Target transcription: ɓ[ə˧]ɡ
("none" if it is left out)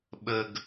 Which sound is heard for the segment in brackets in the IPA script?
ə˧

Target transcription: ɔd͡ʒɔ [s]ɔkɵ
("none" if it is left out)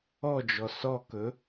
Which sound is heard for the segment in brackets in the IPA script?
s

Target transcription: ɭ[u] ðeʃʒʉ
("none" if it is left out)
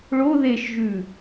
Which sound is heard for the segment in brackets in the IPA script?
o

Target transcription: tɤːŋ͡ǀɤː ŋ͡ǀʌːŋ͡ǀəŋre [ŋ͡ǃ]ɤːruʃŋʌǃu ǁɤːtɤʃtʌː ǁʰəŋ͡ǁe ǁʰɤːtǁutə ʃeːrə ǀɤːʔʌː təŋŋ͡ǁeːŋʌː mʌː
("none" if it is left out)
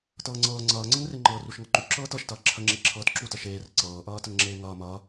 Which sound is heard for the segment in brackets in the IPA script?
ŋ͡ǃ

